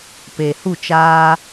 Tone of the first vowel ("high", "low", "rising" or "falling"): low